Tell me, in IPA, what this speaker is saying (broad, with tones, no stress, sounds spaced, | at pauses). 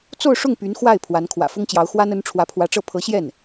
t͡s o˥˧ ʊ̯ ʂ ʊ˥˩ ŋ p y˧˥ n x w a˥˩ ɪ̯ pʰ w a˧˥ n kʰ w ä̰˨˩ f ʊ˥ ŋ t͡ɕ j ɑ˧˥ ʊ̯ x w a˥ n ə˧˥ n ʈ͡ʂʰ w ä˧˥ pʰ w ä˧˥ ʈ͡ʂ ɤ˥˩ pʰ ɤ˧˥ ɕ j ɛ˥˩ n